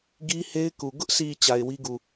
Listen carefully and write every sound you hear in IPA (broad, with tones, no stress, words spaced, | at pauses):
ɡi˦he˦ɪ̯ ku˨ ɡʊ˦ʔsi˨ t͡ɕa˨ɪ̯wi˦ɡu˨